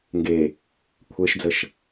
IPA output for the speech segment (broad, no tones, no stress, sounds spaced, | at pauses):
ŋ ɡ e | kʷʰ e ʃ d͡z ə ʃ